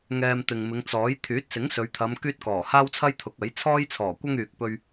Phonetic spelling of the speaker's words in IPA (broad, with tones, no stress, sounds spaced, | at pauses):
ŋ ɛː˧ m t̪ ɪ˨ ŋ m ɪ˨˧ ŋ t͡s ɔː˨˥ j t̪ʰ yː˨˥ t̚ s ɪ˨˥ ŋ s ɵ˨˧ ɥ t̪ʰ ɐ˨˧ m k yː˥ t̚ k ɔː˨˩ h aː˥ w t͡sʰ ɐ˥ j t̪ʰ ʊ˨˥ k̚ ɐ˨˥ j t͡sʰ ɔː˥ j t͡sʰ ɔː˨˩ kʷ ɐ˥ ŋ yː˨ k̚ p ɵ˧ ɥ